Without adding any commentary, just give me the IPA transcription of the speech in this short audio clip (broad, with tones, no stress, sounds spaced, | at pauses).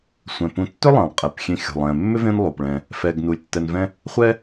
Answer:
sʷ ɛ̃˩ p ũ˨ tː ʏ˥ lˠ ɛ̃˩ lˠ qʼ ɛ˩ p xʲ ẽ˨ xʲ ṳ˩ lˠ ɛ̃˩ mː ʏ˥ v ẽ˦ n lˠ u˩ p ɭ ɛ̃˨ | f ɛ˩ ɡ n u˩ lʲ tː ɛ˨ n v ɛ̃˦ | χʷ ɛ˦